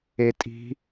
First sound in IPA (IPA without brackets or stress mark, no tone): e